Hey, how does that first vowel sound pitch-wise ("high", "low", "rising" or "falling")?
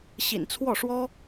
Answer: low